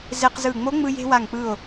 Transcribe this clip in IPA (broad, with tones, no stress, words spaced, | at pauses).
ze˧qzɯ˧˩ ŋ͡mo˧˥ŋ͡mɯ˧je̤˧ wa˧˩ŋk͡pɯ˧˩o̯